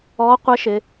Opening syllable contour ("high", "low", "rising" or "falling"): rising